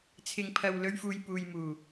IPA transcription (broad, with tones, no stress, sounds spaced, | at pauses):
t͡sʰ ɪ˧ ŋ pʰ ɐ˧ w l ɵ˥ ɥ f uː˧ j p uː˨ j m uː˨˩